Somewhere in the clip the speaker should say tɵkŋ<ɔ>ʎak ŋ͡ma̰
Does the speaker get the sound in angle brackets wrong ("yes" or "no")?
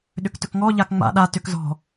no